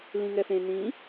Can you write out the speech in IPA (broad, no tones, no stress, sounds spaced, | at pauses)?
l ĩ ŋ ɛ f ẽ n ĩ